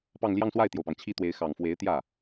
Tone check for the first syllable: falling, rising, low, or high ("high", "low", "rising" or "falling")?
falling